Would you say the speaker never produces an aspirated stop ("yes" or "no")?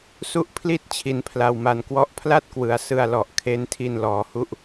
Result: no